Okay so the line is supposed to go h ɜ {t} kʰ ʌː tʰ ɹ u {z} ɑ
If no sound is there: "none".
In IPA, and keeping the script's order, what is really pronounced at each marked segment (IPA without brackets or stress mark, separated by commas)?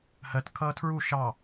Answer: t, ʃ